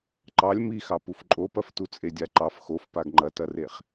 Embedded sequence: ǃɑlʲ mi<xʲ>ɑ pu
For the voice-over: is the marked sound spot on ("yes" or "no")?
no